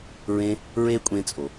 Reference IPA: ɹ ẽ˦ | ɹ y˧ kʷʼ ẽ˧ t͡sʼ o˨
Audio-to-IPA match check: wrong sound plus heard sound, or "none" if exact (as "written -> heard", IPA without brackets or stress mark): y˧ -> e˧